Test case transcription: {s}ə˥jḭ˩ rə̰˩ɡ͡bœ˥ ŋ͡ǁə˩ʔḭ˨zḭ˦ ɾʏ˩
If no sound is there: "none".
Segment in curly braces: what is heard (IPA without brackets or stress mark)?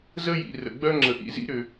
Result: z